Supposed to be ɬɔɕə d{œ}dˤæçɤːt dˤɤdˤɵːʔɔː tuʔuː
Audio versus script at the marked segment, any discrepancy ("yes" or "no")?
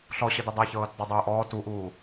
yes